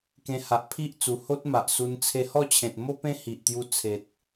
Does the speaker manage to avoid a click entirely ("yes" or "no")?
yes